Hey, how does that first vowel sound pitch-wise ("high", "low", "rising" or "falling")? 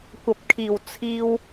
low